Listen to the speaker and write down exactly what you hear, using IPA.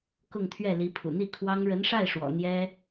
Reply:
k ʊ˥˧ ŋ t̪ʰ ɥ ɛ˥˩ l i˧˥ pʰ ṵ˨˩ n̪ i˥˩ kʰ w ɑ˥ ŋ ɻ ə˧˥ n ʂ a˥˩ ɪ̯ ʂ w ɔ̰˨˩ n̪ j ɛ˥

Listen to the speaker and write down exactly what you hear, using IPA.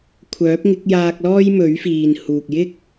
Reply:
kʷʰ œː˨˥ p̚ ŋ ɪ˨˥ k̚ j aː˧ k̚ l ɔː˥ j m ɵ˨˥ ɥ f iː˨ n h uː˨ k̚ j ɪ˥ k̚

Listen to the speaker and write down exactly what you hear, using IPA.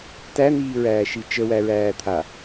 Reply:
t æ n̪ iː ɹ æː ʃ i t͡ʃ ə w æ ɹ æː t̪ʰ a

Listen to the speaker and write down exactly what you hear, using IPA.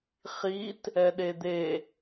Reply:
χ i t | ɛ ɗ e d̪ e

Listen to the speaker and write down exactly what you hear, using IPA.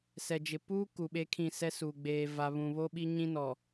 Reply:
s ɛ˨ d͡ʒ ɪ˨ p uː˦ k u˨ ɓ e˦ kʰ ĩ˦˨ s ɛ˦ s uː˨ ɡ͡b eː˨ v a˨ β ũ˨ β o˦ ɓ i˦ ɲ ĩ˦ n ɔ˨

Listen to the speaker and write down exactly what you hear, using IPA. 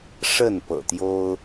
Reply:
ʂ ə˥˨ n p ɤ̰˨˩ t̪ j o˦ ʊ̯

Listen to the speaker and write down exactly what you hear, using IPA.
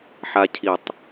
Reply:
ħ a˧ cʰ i˨˩ tˤ

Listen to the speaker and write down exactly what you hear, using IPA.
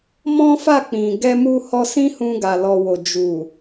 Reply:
m ɔ̃˦ f a˦˨ k͡p ĩ˨ ɡ ɛ˧ m u˧ h ɔ˧ s ĩ˦ h ũ˧ ɡ a˨ l ɔ˨ w o˨ d͡ʒ u˨

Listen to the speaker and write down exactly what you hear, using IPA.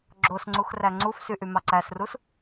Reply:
ɡ͡ǁ o s ŋ͡ǀ u x r æ ŋ͡ǀ u f s y ʔ y m ɑ ǀ æ s r u s

